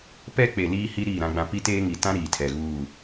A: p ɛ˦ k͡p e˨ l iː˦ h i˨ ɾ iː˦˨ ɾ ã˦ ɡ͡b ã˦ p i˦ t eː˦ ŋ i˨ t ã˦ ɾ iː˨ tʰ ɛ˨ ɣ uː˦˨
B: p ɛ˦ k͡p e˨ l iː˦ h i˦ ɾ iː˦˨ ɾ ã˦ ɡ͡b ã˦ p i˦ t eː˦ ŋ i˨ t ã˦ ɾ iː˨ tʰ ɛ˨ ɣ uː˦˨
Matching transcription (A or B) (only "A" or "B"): B